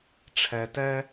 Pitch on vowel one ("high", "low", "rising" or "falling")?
low